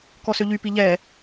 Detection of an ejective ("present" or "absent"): absent